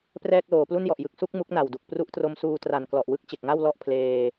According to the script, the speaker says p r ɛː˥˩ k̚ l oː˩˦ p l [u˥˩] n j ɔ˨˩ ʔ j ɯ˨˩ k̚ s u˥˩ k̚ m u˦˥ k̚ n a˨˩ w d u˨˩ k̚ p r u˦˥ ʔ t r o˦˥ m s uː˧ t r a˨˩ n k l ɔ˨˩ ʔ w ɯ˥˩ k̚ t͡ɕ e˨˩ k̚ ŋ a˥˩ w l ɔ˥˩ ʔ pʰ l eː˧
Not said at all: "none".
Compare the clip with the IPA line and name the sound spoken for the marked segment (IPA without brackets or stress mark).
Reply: u˥˩